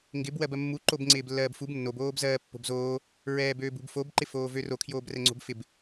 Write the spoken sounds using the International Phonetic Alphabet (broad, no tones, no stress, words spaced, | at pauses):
ŋɡɪb wɜbɜmːu ǃobŋ͡ǀɪːblːɜːbfub nːob oːbzɜːpːo̤bzoː | ɹɛːbøːbṳbfob ǃɪfoːvøro kʰjoːbrɛŋ͡ǀo̤bfɪb